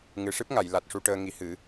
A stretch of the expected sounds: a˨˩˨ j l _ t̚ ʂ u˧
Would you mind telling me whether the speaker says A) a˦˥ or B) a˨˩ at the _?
B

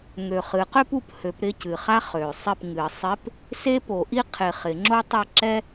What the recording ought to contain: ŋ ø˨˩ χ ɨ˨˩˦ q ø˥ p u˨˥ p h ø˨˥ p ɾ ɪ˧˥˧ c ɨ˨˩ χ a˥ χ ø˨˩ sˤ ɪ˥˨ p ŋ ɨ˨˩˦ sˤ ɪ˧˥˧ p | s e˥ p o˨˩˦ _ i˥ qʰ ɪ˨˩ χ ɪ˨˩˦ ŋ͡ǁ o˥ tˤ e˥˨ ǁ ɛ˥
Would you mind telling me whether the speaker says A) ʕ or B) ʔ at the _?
B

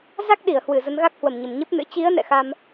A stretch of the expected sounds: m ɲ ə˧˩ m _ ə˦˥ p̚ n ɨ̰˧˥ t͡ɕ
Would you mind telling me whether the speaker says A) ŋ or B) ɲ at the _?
B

